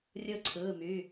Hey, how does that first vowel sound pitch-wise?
falling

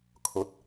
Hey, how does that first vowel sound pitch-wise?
rising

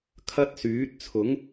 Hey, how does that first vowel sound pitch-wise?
high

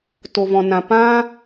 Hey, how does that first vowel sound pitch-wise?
low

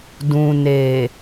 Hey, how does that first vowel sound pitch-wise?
low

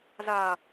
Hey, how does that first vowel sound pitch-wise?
low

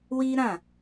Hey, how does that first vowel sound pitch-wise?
high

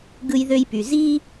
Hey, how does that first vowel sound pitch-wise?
high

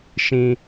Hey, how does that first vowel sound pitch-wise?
high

